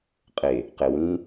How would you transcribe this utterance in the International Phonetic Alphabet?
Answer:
qʼ e | q e w ĩ

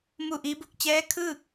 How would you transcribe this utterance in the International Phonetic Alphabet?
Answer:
m u˥˨ ʔ iː˧˥ b u˥˨ k̚ t͡ɕ ɛː˧˥ kʰ ɯː˥˨ k̚

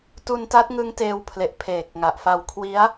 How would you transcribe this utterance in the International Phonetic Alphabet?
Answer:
t u˧ n t a˦˥ t̚ ŋ ɯ˦˥ ŋ t eː˧ w pʰ l e˨˩ ʔ pʰ eː˨˩ k̚ ŋ a˨˩ ʔ f a˧ w kʰ w i˦˥ a̯

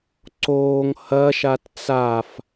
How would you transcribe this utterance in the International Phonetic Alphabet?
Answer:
ǀ oː ŋ h ɐ ʃ a t t͡s a f

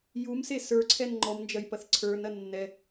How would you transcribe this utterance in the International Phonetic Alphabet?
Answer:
j u m s e s ə˞ ǀʰ ɛ n ŋ͡ǃ ɔ m n d͡ʒ ɐ j p ɐ θ ǀʰ ə˞ n ɐ nː ɛ

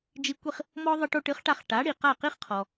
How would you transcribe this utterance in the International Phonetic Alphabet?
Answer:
d͡ʒ i˧ kʷ i˥˩ χ | m ɔ˥ ðˤ ɘ˧ ʈ o˧ ʈ ɨ˩˥ χ ʈ a˧ χ ʈ a˩˥ ɽ i˩ q a˥˩ q i˥ χ qʰ ɔ˩

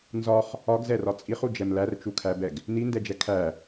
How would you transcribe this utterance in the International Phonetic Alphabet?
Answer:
n z ɒ χ | ɒ ɡ z ɛ r ɒ t͡sʼ i χ u d͡ʒ ɛ m l æ r t͡ʃ u kʰ æ b ɛ ɡ | n i n d ɛ d͡ʒ ɛ kʰ æ

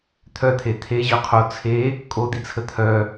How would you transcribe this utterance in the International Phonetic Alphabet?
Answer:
t̪ʰ œ t̪ʰ e t̪ʰ e ʑ œ qʰ o t͡sʰ e | kʼ o d̪ i t͡sʰ ə t̪ʰ œ

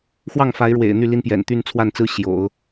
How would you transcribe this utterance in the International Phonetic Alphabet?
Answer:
x w ɑ˥˩ ŋ f a˧˥ ɪ̯ ɻ w ḛ˨˩ ɪ̯ n̪ y˥˩ l i˥ n p j ɛ̰˨˩ n t̪ y˥˧ n t͡sʰ w a˥˩ n t͡s ɹ̩˥ ɕ j o̰˨˩˦ ʊ̯

